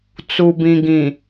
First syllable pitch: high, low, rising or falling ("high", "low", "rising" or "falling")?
low